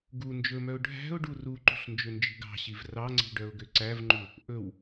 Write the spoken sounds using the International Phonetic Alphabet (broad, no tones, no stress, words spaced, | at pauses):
ɡu nd͡ʒɵmœʊ̯ ɖʱæ̤ʊ̯ɖu ruǃṳɬ nd͡ʒønd͡ʒi̤ɡɑ̤ɕiv rɑŋ͡ǀi̤ ɖœʊ̯ɡøǀævŋ͡ǃu | ʔɵw